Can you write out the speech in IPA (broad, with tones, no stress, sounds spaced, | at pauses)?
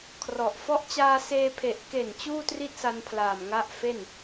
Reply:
kʰ r ɔ˨˩ ʔ f ɔ˦˥ ʔ t͡ɕ aː˧ s eː˧ pʰ e˨˩ ʔ k e˨˩ n t͡ɕ uː˥˩ t r i˥˩ t̚ s a˧ n pʰ l aː˨˩ m ŋ a˦˥ ʔ f e˥˩ n